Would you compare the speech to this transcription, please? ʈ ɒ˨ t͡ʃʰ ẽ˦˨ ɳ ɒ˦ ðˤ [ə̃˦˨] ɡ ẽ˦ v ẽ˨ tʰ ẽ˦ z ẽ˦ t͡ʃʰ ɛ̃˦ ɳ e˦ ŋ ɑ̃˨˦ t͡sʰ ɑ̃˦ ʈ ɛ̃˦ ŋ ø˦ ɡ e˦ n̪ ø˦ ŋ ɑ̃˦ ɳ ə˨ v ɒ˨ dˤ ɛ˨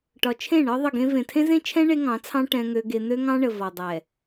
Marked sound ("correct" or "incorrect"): incorrect